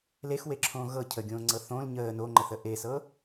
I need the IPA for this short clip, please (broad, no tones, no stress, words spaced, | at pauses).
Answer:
lexweǁʰõː ɣɤ cʰəɡʲõːŋ͡ǀɤ θõl ɲəː noŋ͡ǃəθə ʔesɤ